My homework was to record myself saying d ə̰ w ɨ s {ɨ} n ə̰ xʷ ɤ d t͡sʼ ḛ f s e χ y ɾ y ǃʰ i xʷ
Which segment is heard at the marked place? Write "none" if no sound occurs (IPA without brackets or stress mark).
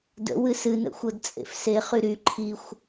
ɨ